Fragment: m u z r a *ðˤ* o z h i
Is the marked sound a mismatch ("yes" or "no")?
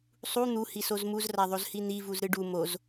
no